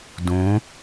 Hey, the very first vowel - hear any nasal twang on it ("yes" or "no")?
yes